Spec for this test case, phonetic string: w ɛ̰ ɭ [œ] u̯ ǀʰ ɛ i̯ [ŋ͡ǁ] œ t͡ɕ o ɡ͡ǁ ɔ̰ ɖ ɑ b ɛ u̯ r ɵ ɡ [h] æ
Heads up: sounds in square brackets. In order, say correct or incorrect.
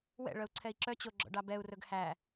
correct, incorrect, correct

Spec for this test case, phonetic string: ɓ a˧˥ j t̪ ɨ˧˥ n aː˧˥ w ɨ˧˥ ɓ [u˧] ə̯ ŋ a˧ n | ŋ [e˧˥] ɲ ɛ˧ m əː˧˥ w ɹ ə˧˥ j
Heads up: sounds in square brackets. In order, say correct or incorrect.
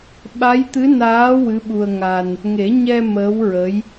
correct, incorrect

